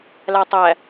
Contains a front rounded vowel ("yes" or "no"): no